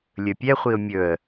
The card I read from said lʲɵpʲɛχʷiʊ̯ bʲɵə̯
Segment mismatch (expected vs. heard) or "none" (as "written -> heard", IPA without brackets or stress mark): bʲ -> mʲ